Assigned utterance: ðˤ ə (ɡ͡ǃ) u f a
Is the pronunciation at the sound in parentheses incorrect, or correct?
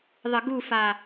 incorrect